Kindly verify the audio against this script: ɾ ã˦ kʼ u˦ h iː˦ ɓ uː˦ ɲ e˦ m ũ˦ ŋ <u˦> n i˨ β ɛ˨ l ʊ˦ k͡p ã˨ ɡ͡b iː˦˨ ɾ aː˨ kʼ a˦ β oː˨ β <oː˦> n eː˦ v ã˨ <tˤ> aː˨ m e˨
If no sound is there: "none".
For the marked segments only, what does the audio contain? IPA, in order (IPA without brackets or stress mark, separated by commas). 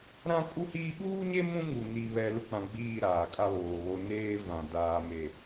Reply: u˨, o˦, d